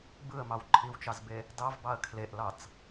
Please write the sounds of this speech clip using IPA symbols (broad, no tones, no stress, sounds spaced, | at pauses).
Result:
b ɯ ə̯ m ɑ w ǃʰ i w t͡ʃ ɑ z b e | d ɑ v b ɑ ə̯ kʰ l e ʔ l ɑ t͡s